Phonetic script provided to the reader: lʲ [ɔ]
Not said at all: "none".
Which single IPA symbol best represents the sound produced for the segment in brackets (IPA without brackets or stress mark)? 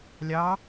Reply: ɑ